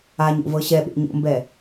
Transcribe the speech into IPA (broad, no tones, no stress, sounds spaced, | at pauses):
a ɲ o̰ v ɤ ɕ ɛ ɓ ḛ ɲ o̰ m b ɛ